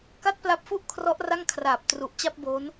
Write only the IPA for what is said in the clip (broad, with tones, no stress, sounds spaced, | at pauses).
k a˥˩ t̚ p l a˦˥ p̚ f u˥˩ ʔ kʰ r ɔ˦˥ ʔ r a˥˩ ŋ kʰ r aː˨˩ p̚ t r u˨˩ ʔ t͡ɕ a˥˩ p̚ b oː˦˥ n